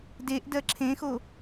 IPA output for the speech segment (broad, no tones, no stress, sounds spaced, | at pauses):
d e ʔ d ɜ ǁʰ ẽ x o